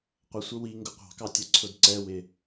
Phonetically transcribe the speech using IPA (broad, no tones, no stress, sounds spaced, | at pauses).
qʷ ʌ sʷ ə w i ŋ ɡ ʊ qʷ ɑ̤ k ɑ tʲ ə ǀʰ ʊ d ǀ ɛ w ɪ